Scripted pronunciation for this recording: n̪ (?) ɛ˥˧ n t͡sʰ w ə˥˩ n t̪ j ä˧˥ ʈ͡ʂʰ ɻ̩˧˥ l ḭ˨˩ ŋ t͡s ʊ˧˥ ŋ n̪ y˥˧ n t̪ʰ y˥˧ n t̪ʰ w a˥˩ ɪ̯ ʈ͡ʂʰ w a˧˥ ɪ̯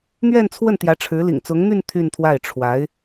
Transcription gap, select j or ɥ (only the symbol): ɥ